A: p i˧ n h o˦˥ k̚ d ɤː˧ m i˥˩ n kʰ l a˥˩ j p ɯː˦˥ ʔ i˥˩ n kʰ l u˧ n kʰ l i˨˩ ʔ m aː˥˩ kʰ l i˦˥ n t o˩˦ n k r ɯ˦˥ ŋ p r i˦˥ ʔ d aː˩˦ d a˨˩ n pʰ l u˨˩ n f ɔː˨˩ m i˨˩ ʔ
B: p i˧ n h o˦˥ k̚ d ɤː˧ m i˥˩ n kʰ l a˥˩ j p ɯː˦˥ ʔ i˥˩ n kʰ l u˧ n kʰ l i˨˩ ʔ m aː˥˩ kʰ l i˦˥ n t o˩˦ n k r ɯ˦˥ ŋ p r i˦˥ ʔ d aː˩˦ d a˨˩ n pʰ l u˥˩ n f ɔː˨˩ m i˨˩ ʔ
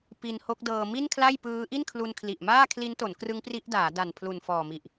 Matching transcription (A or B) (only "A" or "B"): A